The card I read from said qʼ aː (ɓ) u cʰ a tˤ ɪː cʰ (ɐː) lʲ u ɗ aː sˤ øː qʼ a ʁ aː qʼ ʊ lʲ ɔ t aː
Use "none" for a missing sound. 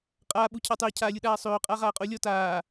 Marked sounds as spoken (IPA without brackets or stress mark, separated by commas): ɓ, aː